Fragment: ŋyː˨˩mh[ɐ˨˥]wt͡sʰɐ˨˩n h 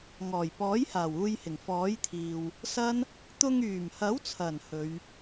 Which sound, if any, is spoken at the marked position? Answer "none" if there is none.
ɐ˨˥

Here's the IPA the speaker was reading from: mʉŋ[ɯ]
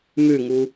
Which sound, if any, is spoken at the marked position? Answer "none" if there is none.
u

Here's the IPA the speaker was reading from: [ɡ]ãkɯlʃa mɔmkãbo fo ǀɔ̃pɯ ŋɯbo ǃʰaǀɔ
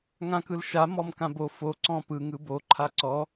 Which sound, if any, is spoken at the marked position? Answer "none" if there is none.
ŋ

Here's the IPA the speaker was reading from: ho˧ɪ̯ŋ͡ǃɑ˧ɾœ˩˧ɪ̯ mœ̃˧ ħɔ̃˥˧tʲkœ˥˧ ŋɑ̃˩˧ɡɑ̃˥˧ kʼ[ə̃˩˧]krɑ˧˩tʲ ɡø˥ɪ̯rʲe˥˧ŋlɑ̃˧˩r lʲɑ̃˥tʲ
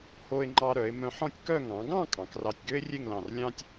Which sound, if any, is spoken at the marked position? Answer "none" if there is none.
ɑ̃˩˧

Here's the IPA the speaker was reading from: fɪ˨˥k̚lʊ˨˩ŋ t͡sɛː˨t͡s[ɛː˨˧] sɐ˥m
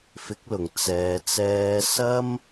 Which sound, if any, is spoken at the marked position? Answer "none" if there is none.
ɛː˧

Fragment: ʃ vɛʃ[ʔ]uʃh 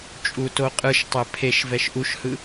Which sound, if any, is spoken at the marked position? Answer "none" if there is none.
ʔ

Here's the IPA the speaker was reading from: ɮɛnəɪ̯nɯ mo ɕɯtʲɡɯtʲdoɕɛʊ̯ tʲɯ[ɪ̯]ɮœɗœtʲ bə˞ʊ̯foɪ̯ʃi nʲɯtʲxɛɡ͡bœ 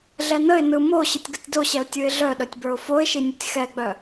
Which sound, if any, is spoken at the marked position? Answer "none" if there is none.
ɪ̯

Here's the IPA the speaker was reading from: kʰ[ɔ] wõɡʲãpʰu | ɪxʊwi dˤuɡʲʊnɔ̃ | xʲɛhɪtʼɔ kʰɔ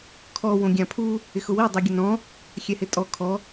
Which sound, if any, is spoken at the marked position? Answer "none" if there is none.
ɔ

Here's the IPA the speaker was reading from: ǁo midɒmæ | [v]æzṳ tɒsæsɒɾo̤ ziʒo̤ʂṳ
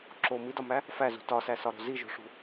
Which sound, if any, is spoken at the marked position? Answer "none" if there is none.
f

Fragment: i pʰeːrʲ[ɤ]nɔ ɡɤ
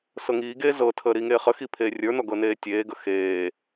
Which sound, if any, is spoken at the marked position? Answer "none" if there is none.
ə˞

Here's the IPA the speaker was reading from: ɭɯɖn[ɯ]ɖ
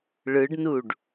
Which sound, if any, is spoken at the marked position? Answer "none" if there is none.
u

